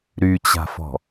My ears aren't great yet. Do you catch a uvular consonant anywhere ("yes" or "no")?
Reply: no